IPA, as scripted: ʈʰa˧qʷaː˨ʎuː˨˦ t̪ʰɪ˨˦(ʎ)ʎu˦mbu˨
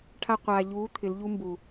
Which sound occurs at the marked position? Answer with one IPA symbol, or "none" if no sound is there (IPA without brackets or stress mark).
l